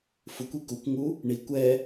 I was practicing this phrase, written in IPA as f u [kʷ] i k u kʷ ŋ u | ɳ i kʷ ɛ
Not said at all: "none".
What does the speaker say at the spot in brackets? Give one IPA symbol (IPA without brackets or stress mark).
kʷ